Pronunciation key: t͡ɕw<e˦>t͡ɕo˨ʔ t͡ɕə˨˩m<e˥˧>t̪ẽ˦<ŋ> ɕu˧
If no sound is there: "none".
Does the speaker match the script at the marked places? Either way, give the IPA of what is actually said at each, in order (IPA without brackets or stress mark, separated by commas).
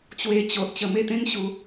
e˧, e˥˧, ŋ